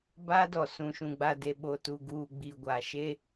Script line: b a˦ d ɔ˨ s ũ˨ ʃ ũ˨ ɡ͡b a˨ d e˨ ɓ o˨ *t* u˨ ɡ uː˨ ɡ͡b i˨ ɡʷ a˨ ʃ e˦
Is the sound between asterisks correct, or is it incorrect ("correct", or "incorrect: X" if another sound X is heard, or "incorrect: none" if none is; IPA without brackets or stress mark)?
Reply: correct